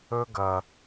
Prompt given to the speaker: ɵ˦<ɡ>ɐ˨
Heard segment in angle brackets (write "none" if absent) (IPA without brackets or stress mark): ɡ